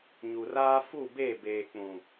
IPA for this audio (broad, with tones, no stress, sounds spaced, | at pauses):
ɲ u˨ r aː˦ f u˦˨ b e˦˨ b eː˨ k͡p ũ˨